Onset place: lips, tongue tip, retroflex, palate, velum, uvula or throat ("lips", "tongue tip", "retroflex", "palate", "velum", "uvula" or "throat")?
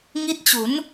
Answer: velum